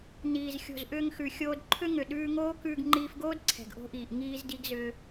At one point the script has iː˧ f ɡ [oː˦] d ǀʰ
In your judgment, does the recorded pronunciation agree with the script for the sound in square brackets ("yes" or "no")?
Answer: yes